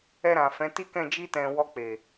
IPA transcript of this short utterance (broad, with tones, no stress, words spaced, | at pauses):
ɛ˧ɾã˨ fɛ̃˨˦ti˦kɛ̃˦˨ d͡ʒi˧tɛ̃˨ wɔ˧k͡pe˨